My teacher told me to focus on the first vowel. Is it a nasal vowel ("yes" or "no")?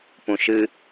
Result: yes